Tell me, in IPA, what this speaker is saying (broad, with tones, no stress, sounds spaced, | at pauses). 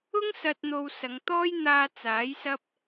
ʊ˥ ŋ s ɐ˨ t̚ n̪ o˨ w s ɐ˨˧ ŋ t̪ ɔː˥ j n̪ aː˧ t͡s aː˨˥ j s ɐ˥ p̚